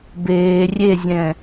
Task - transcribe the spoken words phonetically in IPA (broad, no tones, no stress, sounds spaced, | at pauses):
b eː rʲ e zʲ ɛ̃ː